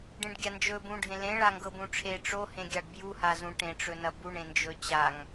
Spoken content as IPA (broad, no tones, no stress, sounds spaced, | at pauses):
ɖ ẽ ɖ ɡʲ a n d͡ʒ ɵ b ũ ɖʱ ẽ l ẽ ɭ a ŋ ɡ ɤ b ũ ʈ͡ʂʰ e ʈ͡ʂ o h ẽ ɡʲ a ɖ b j u h a z ũ ʈ ẽ ʈ͡ʂ ɵ n ɐ b u ɳ ẽ n d͡ʒ ɵ t͡ɕ a ŋ